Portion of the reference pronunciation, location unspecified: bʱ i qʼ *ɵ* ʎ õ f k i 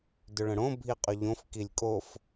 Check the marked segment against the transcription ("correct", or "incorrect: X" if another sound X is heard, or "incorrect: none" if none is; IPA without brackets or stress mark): correct